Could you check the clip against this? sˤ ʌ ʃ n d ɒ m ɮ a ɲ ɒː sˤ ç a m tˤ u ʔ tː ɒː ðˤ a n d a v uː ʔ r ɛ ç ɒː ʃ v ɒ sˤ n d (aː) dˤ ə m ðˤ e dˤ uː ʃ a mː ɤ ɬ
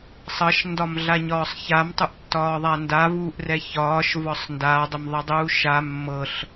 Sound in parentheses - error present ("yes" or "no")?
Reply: no